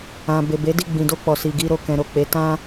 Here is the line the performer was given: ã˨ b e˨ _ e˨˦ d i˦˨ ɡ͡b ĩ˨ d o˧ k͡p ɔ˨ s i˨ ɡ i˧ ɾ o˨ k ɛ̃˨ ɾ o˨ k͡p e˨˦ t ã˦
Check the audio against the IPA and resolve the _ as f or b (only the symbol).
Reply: b